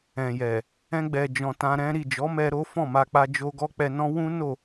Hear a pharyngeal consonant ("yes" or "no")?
no